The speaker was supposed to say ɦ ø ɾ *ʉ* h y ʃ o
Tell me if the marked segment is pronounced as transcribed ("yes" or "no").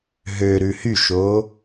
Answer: yes